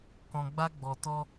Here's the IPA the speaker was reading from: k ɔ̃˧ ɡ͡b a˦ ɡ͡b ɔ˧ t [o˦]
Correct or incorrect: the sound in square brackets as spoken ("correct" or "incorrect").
incorrect